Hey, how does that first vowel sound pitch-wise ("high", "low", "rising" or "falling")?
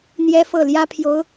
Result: high